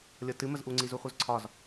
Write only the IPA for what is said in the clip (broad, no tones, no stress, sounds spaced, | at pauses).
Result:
lʲ ɤ t ɨ m ə z ʔ u ŋ͡ǀ i z u χʷ ɯ z ǀʰ ɒ z